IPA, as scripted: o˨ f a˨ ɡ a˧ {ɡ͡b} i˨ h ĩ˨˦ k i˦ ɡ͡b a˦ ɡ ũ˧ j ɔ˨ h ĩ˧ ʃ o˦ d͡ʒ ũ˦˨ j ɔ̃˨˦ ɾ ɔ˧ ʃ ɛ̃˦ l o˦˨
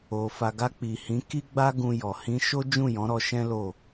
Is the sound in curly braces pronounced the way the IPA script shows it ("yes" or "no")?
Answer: no